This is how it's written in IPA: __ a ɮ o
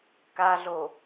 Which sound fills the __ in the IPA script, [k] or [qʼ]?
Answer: k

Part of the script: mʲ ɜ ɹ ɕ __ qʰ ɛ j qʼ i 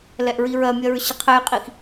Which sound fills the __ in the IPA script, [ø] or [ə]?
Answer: ə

